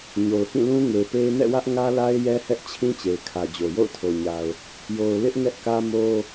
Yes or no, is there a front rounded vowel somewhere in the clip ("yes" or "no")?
no